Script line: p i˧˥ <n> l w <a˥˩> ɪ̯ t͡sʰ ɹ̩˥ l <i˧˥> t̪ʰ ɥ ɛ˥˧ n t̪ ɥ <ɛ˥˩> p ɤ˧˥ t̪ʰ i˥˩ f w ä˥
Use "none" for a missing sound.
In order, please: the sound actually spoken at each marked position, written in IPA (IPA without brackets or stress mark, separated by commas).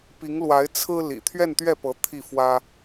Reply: ŋ, a˧˥, ḭ˨˩, ɛ˥˩